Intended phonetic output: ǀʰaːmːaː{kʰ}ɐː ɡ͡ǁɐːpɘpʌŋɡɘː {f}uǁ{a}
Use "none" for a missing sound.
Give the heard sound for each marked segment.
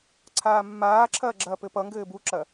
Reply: ǁʰ, b, ɐ

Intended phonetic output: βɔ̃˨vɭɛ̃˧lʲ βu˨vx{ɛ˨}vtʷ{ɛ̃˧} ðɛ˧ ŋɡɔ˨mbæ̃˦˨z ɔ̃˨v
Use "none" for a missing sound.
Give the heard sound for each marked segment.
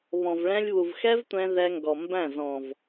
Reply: ɛ˦, ɛ̃˧

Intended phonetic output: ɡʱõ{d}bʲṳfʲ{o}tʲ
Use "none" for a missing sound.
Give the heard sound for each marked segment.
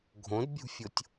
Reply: d, o

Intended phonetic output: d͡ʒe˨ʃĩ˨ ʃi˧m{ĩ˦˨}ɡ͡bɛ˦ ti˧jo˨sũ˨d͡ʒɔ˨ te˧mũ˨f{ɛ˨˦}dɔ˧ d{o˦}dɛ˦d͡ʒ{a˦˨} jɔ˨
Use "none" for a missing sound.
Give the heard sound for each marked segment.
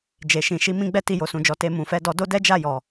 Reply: ĩ˦, ɛ˧, o˦, a˦˨

